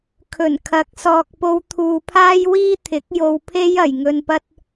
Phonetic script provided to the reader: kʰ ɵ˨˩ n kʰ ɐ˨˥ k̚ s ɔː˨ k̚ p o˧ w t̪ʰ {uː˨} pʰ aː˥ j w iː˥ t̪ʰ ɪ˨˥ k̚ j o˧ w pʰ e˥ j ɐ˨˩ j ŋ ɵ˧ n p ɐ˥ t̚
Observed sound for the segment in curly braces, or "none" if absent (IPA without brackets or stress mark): uː˨